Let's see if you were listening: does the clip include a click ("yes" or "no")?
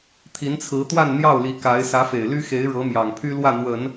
no